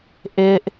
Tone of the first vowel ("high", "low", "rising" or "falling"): low